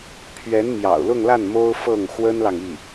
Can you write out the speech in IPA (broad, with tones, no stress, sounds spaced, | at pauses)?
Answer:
pʰ ɥ ɛ˧˥ n m j ɑ̰˨˩ ʊ̯ l ʊ˥˧ ŋ l a˥˩ n m o˥ ʊ̯ f ɤ˥˩ ŋ x w ə˥ n l ɑ˨ ŋ i˥˩